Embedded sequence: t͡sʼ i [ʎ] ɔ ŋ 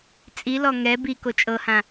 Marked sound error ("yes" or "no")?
yes